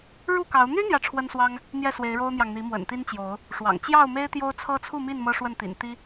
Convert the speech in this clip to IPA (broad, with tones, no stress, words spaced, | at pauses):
ɻu˥˨kɑ˨˦ʊ̯ n̪y˦ n̪jä˦ʈ͡ʂʰwə˦nswɑ˦ŋ | n̪jɛ˥˨swe˨˦ɪ̯ɻo˦ʊ̯n̪jɑ˨ŋ n̪i˨˦mwə̰˨˩nt̪i˦nt͡ɕjo˨˦ʊ̯ | ʂwɑ̰˨˩ŋ t͡ɕjɑ˥˨ʊ̯me˦ɪ̯t̪jo˦ʊ̯ t͡sʰɤ˦t͡sʰu˥˨mi˥˨n mɤ˦ʂwə˥˨nt̪ḭ˨˩n t̪i˦